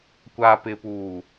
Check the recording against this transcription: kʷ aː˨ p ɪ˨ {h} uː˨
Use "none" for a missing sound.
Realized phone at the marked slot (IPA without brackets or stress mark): p